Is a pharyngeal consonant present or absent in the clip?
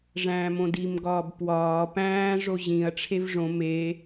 absent